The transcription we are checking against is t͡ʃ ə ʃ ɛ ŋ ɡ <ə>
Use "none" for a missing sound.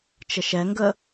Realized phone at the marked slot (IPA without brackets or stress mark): ə